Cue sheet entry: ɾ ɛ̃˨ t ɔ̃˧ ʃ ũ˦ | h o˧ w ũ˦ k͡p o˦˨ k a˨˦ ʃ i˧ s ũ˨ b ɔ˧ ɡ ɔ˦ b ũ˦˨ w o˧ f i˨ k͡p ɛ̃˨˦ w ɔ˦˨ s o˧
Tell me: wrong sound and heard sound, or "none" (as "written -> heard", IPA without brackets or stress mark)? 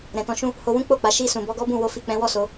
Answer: k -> k͡p